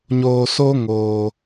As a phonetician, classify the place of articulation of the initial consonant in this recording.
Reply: palatal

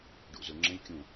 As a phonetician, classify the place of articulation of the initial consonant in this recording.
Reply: retroflex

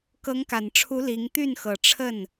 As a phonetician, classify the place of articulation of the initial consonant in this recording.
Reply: velar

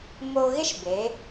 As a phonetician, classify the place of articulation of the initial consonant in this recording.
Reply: labial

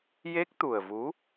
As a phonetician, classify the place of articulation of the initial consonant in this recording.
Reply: palatal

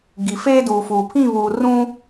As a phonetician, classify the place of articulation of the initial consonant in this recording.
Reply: velar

